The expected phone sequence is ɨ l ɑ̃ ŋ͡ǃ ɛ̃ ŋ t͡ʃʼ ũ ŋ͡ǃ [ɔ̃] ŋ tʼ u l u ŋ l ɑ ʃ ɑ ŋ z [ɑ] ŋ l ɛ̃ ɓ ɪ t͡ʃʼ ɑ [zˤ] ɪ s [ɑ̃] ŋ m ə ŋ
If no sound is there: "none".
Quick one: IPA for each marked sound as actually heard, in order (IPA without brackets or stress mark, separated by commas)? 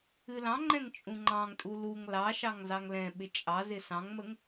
ɑ̃, ɑ, z, ɑ̃